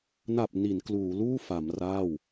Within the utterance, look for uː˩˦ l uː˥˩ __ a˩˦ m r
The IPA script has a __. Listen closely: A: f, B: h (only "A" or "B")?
A